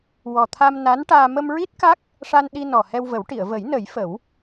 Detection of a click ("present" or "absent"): absent